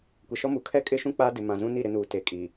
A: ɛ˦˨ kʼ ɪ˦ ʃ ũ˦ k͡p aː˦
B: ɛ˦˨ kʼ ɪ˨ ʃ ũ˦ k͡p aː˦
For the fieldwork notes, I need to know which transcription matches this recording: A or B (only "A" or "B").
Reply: A